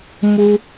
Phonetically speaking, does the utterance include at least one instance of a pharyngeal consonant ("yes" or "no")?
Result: no